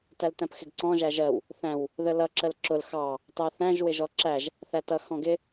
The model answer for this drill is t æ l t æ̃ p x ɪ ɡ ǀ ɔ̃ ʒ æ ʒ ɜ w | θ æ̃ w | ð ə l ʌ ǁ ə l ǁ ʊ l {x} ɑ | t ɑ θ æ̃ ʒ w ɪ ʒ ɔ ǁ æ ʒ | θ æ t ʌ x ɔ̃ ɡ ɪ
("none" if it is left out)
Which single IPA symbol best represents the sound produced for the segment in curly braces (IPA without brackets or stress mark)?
x